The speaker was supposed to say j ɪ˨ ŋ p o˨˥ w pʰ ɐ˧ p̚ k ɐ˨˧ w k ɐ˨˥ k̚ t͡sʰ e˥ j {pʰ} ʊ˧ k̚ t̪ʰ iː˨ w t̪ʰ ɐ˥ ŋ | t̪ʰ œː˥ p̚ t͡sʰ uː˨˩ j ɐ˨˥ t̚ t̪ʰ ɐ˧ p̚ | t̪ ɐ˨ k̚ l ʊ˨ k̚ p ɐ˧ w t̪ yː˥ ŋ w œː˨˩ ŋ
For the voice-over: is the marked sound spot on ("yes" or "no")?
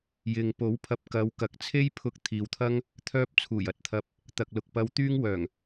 yes